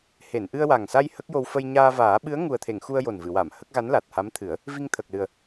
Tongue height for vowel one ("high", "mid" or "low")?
mid